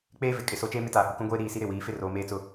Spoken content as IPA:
k͡p eː˦ v ɪ˨ kʼ ɪ˨ s o˦ t͡ʃ eː˦ m ɪ˦ t aː˨ h u˨ k ũ˦ ɡʷ eː˦ ɾ iː˦˨ s i˦ ɾ ɪ˦˨ w iː˨˦ f ɪ˦ r oː˨ m eː˦ t͡s ʊ˦

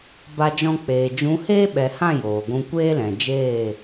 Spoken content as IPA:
b a˧ d͡ʒ ɔ̃˧ k͡p eː˨ d͡ʒ ũ˨˦ h eː˦ ɓ ɛ˨ h ã˦˨ j oː˨ ɡʷ ũ˧ kʷ eː˦ l ɛ̃˨ d͡ʒ eː˦˨

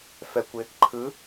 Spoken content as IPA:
f ɛ kʷ ɪ | ǃʰ ɯ

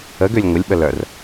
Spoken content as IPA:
ə ɡ ø lʲ ŋʷ ɪ lʲ ɓ ə l œ r

